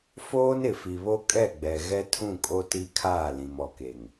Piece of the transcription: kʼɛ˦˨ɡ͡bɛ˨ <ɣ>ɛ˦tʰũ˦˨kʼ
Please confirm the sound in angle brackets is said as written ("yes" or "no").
yes